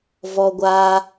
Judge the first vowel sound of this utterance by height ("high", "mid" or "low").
mid